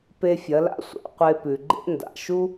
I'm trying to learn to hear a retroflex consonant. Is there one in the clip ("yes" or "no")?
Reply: no